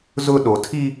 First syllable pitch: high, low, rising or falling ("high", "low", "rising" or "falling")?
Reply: high